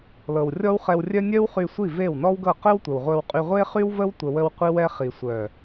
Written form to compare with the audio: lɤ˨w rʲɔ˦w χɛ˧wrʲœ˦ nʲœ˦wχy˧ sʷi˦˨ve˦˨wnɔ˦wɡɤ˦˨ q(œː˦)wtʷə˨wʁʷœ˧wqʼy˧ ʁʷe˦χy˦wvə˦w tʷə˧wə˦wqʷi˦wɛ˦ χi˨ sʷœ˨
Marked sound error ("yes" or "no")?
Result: yes